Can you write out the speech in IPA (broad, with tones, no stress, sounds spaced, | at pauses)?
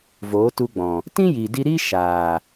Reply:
v oː˨˦ t u˧ ɡ͡b ɔ̃˨ | t ĩ˦ j iː˨ d i˧ ɾ iː˦ ʃ aː˨